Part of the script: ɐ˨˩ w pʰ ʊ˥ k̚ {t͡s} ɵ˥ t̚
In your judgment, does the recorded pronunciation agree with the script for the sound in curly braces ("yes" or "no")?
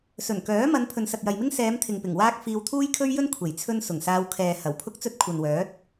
yes